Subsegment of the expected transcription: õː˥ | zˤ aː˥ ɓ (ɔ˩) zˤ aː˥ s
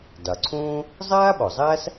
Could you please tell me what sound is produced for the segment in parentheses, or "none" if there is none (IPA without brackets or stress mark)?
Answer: ɔ˩